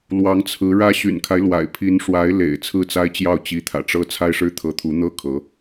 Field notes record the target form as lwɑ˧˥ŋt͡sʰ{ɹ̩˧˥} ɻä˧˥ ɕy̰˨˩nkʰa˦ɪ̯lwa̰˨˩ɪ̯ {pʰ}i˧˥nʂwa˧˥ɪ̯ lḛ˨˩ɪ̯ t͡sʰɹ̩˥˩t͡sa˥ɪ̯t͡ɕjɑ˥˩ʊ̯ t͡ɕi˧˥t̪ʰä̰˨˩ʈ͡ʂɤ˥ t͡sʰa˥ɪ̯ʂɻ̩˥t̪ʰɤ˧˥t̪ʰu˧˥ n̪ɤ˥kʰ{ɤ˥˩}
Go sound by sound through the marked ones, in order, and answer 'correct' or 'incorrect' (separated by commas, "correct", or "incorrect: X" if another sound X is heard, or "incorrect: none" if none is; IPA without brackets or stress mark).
correct, correct, incorrect: ɤ˧˥